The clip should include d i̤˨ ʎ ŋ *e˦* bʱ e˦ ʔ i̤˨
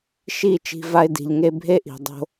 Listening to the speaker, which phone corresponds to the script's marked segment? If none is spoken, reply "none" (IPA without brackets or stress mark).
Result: e˧